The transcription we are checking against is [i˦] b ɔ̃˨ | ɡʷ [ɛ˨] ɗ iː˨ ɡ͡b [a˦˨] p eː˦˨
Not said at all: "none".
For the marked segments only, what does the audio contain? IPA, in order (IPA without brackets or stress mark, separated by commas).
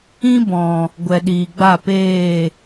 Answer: ĩ˦, ɛ˨, a˦˨